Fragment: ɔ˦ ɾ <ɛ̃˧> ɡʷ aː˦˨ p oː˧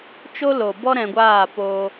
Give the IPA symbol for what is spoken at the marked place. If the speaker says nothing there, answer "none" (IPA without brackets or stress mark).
ɛ̃˧